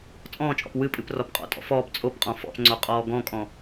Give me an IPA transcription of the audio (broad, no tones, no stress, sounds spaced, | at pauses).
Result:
t͡sʼ ɔ̃ː t͡ʃʼ ɔ̰ p w ɨ pʼ ɨ p r ɔ p qʼ ɔ̰ tʼ ɔ̰ f ɔː p t͡sʼ o p qʼ ɔ̃ f ɔ̰ p ŋ͡ǀ o qʼ ɔː ɡ ɔ̃ kʼ ɔ̃